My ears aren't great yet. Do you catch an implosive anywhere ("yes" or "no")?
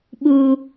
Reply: yes